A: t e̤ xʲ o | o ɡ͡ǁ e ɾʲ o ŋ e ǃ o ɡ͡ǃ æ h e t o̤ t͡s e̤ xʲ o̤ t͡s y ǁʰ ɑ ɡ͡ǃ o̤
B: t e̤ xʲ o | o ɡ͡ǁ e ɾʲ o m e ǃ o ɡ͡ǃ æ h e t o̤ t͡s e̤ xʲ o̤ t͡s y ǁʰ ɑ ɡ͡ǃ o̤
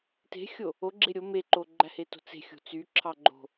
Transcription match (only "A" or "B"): B